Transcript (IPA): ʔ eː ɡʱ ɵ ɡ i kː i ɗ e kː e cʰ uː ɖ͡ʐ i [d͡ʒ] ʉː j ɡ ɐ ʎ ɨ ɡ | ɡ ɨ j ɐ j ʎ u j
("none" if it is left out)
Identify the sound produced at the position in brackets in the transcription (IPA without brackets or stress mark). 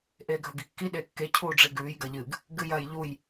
ɡ